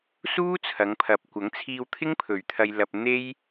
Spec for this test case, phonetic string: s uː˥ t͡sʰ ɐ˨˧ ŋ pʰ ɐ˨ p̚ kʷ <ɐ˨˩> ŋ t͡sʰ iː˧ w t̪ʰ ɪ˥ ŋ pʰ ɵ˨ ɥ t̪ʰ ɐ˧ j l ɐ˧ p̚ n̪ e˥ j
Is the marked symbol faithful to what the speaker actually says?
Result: no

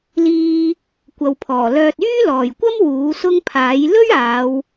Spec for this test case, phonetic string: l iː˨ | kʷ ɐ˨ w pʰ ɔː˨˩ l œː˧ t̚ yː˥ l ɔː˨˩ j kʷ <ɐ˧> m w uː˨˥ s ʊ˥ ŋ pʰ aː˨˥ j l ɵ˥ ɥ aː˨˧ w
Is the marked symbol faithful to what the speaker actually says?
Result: no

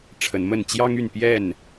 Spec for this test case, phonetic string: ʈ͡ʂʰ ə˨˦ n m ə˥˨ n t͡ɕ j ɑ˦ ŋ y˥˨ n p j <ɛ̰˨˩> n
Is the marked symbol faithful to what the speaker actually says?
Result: no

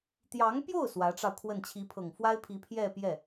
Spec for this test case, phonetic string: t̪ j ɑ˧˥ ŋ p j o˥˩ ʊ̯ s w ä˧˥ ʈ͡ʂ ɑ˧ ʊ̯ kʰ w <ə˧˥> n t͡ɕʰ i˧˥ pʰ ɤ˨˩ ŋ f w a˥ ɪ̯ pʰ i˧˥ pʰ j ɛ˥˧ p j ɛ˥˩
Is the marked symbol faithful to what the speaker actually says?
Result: no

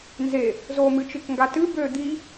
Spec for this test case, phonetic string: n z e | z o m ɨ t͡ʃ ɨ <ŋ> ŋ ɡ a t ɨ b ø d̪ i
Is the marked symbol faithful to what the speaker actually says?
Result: no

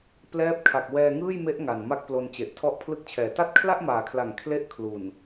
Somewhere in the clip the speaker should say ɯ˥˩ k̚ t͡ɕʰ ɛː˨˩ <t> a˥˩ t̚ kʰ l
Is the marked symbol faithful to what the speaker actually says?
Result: yes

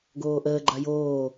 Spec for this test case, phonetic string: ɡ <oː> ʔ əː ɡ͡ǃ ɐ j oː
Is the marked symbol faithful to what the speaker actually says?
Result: yes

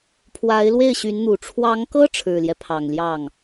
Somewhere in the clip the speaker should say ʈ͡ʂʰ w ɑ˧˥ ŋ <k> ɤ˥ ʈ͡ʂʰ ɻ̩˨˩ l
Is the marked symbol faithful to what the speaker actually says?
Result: yes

